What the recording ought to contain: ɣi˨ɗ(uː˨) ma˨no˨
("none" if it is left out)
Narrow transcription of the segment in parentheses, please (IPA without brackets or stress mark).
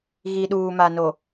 uː˨